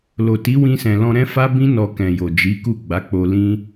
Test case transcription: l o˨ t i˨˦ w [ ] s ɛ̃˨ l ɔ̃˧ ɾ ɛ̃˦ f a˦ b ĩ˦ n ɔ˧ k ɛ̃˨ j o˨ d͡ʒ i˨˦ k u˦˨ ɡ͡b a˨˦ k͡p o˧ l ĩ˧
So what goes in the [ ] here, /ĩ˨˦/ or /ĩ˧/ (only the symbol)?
ĩ˧